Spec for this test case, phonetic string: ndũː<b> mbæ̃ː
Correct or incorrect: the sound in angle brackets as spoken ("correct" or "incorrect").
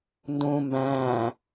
incorrect